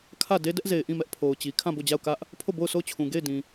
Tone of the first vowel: falling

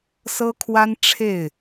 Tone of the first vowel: high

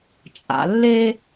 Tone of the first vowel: low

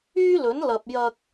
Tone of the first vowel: high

